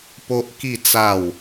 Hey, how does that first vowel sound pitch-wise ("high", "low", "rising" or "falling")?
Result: high